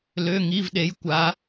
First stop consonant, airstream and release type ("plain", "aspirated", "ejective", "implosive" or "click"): implosive